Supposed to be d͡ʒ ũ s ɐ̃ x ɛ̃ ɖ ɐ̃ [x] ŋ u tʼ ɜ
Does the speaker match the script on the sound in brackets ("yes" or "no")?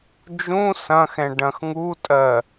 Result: yes